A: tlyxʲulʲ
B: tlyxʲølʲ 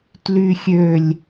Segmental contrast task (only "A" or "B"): B